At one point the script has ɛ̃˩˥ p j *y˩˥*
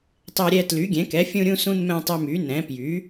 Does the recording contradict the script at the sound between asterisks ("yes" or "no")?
no